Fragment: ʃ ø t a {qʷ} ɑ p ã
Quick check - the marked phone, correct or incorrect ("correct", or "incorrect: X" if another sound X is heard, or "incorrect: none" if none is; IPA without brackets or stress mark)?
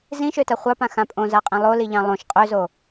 incorrect: χʷ